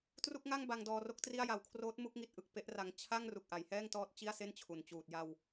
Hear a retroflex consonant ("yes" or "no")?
no